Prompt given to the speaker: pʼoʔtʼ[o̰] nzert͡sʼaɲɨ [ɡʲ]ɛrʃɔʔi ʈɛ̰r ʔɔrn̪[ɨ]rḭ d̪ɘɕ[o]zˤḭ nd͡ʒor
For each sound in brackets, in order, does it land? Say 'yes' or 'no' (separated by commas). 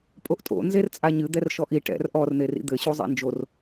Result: yes, no, no, no